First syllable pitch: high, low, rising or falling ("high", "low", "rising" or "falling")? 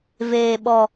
high